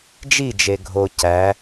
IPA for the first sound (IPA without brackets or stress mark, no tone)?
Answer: d͡ʒ